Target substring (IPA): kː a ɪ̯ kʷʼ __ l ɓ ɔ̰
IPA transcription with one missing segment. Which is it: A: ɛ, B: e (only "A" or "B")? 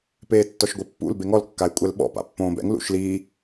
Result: A